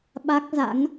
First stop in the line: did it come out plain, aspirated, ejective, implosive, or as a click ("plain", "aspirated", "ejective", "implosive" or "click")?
implosive